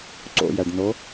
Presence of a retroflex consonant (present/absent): present